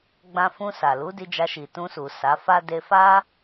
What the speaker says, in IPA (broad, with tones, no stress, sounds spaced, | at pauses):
ɡ͡b ã˧ f ũ˧ s a˨ l u˨˦ d i˧ d͡ʒ a˧ ʃ i˨ t ũ˧ s u˨ s a˨˦ f a˦ d e˧ f a˦